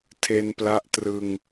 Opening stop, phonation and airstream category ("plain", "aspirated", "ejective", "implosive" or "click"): aspirated